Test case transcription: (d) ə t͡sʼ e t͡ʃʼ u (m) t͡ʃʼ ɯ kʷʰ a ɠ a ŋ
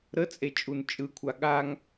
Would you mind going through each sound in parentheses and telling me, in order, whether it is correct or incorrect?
incorrect, incorrect

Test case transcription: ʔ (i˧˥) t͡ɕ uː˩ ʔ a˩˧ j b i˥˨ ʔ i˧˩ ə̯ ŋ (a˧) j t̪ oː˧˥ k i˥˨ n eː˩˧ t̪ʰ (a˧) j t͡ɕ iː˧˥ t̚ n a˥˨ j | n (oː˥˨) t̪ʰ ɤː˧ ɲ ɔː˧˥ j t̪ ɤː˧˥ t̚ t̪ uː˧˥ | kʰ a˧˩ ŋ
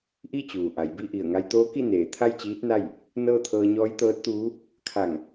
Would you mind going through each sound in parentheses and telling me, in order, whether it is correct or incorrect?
incorrect, correct, incorrect, incorrect

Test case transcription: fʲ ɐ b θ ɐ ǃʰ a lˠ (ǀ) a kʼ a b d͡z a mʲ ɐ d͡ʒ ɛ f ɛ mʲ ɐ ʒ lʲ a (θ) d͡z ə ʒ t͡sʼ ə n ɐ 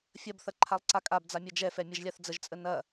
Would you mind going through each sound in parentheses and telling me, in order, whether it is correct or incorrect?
correct, correct

